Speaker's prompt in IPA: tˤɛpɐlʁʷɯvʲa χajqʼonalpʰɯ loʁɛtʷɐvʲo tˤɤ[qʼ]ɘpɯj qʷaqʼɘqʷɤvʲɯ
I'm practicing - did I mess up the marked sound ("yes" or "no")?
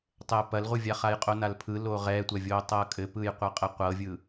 yes